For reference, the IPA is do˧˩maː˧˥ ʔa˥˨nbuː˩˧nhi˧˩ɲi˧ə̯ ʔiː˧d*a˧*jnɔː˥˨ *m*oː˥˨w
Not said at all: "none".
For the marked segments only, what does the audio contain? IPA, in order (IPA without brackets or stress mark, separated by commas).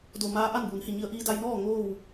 a˧, ŋ